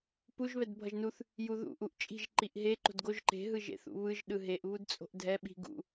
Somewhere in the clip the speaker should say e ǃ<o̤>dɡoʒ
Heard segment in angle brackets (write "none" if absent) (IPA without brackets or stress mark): o̤